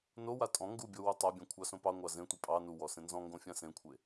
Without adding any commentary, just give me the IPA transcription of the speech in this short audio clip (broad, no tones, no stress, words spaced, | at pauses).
nowa tʼɔ̃ ŋɡubʲo wutˤabʲã kʷʰɑsõpɑŋʷɑ zẽtʷe pʼɑ nuwɔ sẽnzɔ̃ŋɡõ fʲãsẽkʷʰe